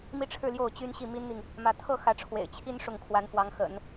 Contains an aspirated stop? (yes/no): yes